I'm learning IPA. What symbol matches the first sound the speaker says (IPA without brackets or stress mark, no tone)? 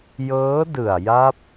j